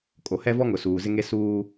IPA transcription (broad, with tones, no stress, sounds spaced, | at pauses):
kʼ o˨ h ɛ˦ v ɔ˦ ŋ ʊ˨ s uː˨ z ɪ˦ ŋ e˦ s uː˦